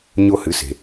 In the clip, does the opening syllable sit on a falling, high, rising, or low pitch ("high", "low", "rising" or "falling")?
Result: high